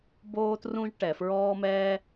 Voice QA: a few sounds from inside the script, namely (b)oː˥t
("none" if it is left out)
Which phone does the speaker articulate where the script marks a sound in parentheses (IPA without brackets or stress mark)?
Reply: b